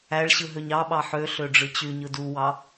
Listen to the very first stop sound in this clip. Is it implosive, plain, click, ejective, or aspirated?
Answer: implosive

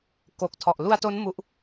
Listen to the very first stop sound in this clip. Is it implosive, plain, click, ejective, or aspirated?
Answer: plain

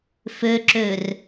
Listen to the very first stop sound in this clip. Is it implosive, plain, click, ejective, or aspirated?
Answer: click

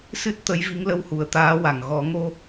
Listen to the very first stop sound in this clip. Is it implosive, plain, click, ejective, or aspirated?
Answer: plain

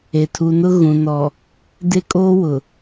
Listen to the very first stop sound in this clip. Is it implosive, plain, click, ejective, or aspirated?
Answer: aspirated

